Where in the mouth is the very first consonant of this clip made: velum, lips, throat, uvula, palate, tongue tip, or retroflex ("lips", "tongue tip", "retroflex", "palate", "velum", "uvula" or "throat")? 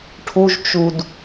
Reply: retroflex